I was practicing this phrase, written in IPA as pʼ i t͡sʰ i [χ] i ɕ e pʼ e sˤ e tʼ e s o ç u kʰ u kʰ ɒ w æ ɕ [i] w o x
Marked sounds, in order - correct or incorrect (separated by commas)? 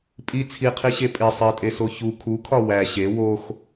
incorrect, incorrect